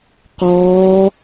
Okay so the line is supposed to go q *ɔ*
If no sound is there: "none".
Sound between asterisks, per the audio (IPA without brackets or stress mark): ɔː